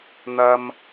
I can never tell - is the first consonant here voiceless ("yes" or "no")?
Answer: no